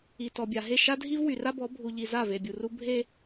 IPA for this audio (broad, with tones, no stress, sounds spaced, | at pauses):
i˨ t ɔ˨ bʲ a˨ ɦ e˦˨ ʃ a˦ dʱ i˦ v w y˨ r a˦ b ɔ˨˦ bʱ u˨ ʎ i˨ z a˦˨ v e˨ bʲ u˨ r u˦ bʱ e˦